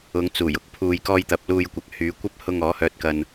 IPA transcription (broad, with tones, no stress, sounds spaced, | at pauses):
ʊ˨˧ ŋ t͡s uː˨˩ j ʊ˨ k̚ pʰ uː˨ j k ɔː˧ j t̪ ɐ˨ p̚ l uː˧ j kʷ ɐ˨˥ k̚ h yː˨˧ kʷ ɐ˥ p̚ h ʊ˧ ŋ ɔː˨˥ h œː˧ t̚ k ɐ˧ n